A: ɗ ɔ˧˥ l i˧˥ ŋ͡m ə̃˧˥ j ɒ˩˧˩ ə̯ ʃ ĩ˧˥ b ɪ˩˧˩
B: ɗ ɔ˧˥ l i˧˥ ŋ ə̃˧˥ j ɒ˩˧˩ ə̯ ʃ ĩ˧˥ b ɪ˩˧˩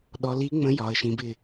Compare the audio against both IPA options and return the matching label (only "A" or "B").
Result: A